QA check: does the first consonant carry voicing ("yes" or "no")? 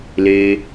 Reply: yes